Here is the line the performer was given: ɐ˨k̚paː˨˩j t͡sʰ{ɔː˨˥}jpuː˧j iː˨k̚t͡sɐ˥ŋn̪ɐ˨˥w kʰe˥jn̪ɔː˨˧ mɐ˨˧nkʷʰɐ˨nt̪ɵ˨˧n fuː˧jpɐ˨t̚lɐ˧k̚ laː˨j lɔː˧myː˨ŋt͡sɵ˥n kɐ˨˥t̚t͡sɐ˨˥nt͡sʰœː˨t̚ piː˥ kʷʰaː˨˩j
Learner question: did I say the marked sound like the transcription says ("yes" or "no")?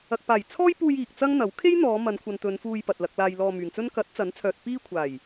no